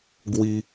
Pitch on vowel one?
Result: high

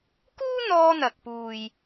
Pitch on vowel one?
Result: high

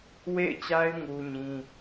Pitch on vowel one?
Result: falling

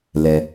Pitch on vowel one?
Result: low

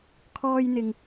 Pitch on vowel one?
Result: high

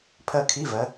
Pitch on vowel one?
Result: falling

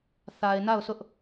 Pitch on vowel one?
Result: low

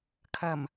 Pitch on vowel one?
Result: low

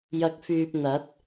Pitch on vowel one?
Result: rising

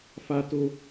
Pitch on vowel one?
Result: low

